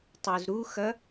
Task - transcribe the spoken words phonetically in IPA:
tˤ u z ɾ u x ɐ

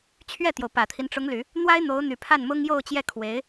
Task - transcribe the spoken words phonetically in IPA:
t͡ɕʰ ɥ ɛ˥˩ t̪ j o˩ ʊ̯ p ä˨˩ t̪ʰ i˦ n ʈ͡ʂ ʊ˧˥ ŋ l y˨˩˦ | n̪ w a˥ ɪ̯ n̪ o˧˥ ʊ̯ n̪ y˨˩ pʰ a˥˩ n m ʊ˥ ŋ j o˥˧ ʊ̯ t͡ɕ j ɛ˥˩ kʰ w e˧˥ ɪ̯

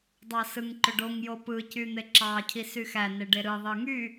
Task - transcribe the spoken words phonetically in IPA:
dˤ ɑ s ɯ ŋ ǃ ø ɖ o ŋ j o p ɯ c y n̪ e ǁ ɑ cʰ i s y x æ n e ɖ e ɾ ɯ ðˤ ɯ ŋ y

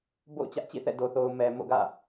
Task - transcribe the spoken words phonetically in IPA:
b o̰˦˨ ʊ̯ t͡ɕ ä˦ ʔ t͡ɕ ḭ˦˨ θ ɛ̰˦˨ d o˨ θ o˨ ʊ̯ m ɛ˨ m o̰˦˨ ɡ ä̰˦˨

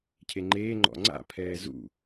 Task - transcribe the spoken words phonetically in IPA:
cʰ e ŋ͡ǃ eː ŋ͡ǃ ɔ̰ ŋ͡ǀ a̰ pʰ ɛː z ṵ

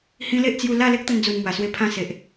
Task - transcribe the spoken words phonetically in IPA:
h ĩ˦ l e˦ ʔ t͡s j u˧ l a˥˧ l e˦ k̚ t̪ ə˧ n d͡z u˨˩ n m w a˨˩ s w e˧ pʰ ã˧ s e˨ ʔ

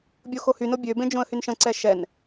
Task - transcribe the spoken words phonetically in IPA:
bʲ o x o h y n o bʲ ø b ẽ d͡ʒ õ ə̯ h y n ʃ ə̃ ǀ ɛ ʃ ɛ n

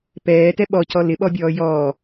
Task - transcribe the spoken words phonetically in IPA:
p ɛː t ɛ ɓ ɔ c ɔ l ɪ ɓ ɔ bʲ ɔː j ɔː

